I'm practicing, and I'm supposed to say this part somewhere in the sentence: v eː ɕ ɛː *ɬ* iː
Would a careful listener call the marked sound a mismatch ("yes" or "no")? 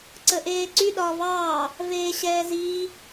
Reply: yes